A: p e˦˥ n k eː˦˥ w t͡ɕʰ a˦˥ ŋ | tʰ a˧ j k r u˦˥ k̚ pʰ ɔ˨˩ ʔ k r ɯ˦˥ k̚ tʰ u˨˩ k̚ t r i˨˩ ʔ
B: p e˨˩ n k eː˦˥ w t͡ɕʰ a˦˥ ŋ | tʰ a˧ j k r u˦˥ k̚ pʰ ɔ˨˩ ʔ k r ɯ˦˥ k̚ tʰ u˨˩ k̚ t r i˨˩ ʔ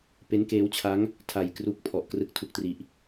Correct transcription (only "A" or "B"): A